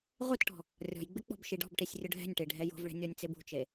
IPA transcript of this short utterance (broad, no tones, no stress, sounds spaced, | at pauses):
ʁʷ ɪ t ʈ ɔ̤ | rʲ ɔ̤ j ɡ͡b ɪ k͡p ɔ̤ b ʃ i ɖ ɔ̤ b ʈ i sʲ rʲ ʊ ɖʱ ɛ̤ nʲ ʈ e ɖʱ ɛ j o̤ v ɭ ɛ̤ nʲ ɔ nʲ t͡s e b ṳ t͡ʃ e